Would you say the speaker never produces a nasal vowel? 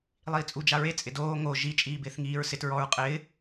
yes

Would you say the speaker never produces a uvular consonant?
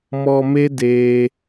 yes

